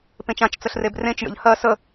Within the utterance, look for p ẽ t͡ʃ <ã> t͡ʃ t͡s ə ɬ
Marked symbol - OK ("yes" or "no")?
yes